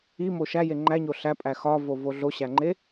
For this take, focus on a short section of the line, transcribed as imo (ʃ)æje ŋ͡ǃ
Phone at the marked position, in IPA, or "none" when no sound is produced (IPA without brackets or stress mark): ʃ